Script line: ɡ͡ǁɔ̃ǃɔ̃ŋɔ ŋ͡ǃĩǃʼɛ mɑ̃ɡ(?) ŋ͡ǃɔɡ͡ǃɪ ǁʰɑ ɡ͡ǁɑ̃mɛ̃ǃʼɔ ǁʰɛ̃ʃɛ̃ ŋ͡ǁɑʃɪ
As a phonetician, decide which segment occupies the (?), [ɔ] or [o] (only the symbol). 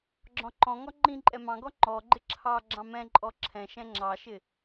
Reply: ɔ